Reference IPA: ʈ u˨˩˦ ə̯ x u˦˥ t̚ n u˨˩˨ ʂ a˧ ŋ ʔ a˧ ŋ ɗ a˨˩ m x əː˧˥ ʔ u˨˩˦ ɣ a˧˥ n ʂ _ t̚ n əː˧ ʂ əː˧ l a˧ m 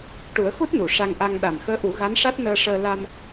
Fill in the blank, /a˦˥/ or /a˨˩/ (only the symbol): a˦˥